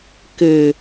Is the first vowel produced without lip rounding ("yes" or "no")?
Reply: yes